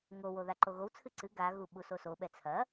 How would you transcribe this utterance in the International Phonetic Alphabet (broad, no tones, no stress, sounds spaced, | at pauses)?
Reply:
ŋ o w o ð a ǃ o ɣ o w t͡sʰ ɨ ǀ ɨ ɡ a ɣ u ɓ u s o s o ɓ ɛ t͡sʰ ɐ